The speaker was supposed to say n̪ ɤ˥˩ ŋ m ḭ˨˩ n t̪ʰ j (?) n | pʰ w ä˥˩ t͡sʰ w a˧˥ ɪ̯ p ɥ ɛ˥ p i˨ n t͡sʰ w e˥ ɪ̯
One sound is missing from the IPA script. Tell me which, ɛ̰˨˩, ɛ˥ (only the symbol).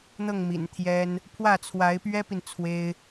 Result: ɛ˥